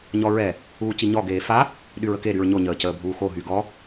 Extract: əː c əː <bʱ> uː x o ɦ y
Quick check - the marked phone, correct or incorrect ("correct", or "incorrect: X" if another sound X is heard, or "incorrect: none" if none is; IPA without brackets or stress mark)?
correct